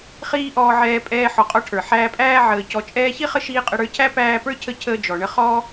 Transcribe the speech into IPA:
χ iː˥ ʔ ɔː˦ ʕ ɛː˦ pʼ ɛː˦ ħ ɔ˨ qʼ ɔ˦ ʈʰ ə˞˩ ħ æː˦ pʼ æː˥ ʕ əː˨ c ɔ˨ t͡ʃʼ ɛː˦ ç i˥ χ ə˦ ʃ iː˥ qʼ ə˦ ɽ ə˞˥ cʰ æ˥ p æː˦ p ə˞˥ cʰ ə˦ cʰ əː˦ d͡ʒ ɔ˩ ɳ ə˦ χ ɔ˦

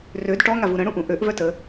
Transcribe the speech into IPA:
r ø d ʈ ɔ ŋ a v u ɾ ə̃ ɽ ũ ʔ ũ ʔ ø ʔ v œ t ə

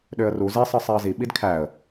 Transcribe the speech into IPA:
ɗ ø ə̯ r u z i sˤ ɯ sˤ e ə̯ z i ɓ i d kʰ æ ə̯

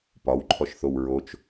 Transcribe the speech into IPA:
p ɒ w ǃʰ ɔ ʃ θ o w ɹ o t͡ʃ

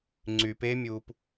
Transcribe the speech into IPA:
ŋ͡ǀ y p e mʲ uː p

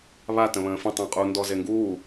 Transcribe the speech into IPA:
β a t ə̃ β ə̃ː f ə̃ tˤ ə̃ː qʼ u n d ɔ z e ŋ ɡ uː

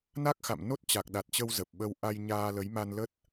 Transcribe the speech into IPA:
n a˦˥ k̚ x a̰˧˨ m n o˦˥ t̚ t͡ɕ a˨˩ k̚ ɗ a˨˩ t̚ t͡ɕ ə˧ w z ə˨˩ p̚ ɓ ə˧ w ʔ a˧ j ɲ aː˧ l ə˨˦ j m a˧ n l ə˦˥ t̚

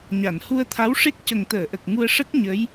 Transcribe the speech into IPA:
ɲ a˨˩˨ n h u˧ ə̯ t̪ʰ a˧˥ w ʂ e˦˥ k̚ c ə˨˩ ŋ t̪ əː˨˩˨ ʔ ə˨˩ k̚ ŋ u˧ ə̯ ʂ ə˦˥ k̚ ɲ ə˧˥ j

